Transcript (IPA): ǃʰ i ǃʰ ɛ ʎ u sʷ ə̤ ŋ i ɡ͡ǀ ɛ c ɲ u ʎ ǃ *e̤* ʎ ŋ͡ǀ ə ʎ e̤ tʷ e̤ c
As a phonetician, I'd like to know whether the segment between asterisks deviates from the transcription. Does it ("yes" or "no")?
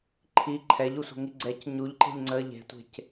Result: no